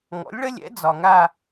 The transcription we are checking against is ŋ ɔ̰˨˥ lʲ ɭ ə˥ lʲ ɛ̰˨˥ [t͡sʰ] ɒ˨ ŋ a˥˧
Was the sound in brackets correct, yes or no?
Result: no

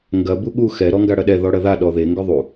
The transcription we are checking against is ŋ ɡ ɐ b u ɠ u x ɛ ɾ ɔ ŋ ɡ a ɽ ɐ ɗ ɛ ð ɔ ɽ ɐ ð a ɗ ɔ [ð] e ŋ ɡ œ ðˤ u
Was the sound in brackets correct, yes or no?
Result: yes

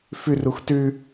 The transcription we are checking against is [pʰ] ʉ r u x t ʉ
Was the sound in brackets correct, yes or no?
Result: no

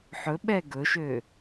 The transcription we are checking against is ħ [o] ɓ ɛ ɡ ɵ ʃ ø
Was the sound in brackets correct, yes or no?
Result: no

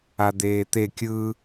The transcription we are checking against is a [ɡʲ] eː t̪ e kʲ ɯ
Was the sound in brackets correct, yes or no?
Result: no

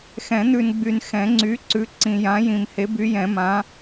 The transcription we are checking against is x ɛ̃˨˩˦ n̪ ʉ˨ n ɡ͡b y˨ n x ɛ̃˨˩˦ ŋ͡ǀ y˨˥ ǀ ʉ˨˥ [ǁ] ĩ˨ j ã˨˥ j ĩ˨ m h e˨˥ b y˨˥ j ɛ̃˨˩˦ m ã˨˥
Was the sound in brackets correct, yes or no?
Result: no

